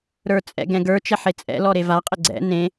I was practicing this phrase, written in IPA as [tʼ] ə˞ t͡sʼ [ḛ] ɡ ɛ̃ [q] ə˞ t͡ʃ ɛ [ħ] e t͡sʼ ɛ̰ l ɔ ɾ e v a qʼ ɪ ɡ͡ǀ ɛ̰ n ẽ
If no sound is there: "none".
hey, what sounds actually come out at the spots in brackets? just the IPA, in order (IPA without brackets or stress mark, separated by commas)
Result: ɾ, ɛ̰, ɡ, ħ